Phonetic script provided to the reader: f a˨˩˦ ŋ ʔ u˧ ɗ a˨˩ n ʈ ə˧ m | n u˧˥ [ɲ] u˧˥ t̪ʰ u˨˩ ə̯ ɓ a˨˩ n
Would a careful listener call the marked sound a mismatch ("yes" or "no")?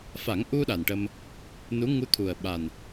yes